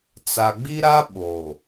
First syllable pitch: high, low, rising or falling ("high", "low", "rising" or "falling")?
low